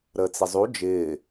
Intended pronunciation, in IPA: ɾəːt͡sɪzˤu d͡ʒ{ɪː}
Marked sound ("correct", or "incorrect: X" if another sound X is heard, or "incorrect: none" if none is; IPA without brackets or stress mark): correct